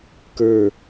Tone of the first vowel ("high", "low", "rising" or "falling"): falling